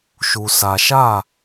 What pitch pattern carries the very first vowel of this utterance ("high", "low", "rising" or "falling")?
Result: low